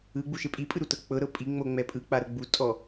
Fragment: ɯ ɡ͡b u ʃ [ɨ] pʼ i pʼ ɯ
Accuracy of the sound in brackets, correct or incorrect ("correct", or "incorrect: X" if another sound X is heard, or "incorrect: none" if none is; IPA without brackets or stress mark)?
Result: incorrect: e